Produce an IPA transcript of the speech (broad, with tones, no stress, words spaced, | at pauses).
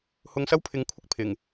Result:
hʊ˧ŋsɐ˥wpʰɪ˨˥ŋ kʷʰɪ˥k̚ pʰɪ˨˩ŋ